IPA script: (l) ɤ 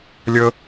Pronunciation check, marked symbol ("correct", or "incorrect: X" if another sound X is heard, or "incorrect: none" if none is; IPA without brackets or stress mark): incorrect: lʲ